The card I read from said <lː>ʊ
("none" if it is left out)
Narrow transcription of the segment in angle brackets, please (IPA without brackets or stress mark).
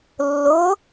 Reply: lː